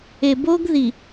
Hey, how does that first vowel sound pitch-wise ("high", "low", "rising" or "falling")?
low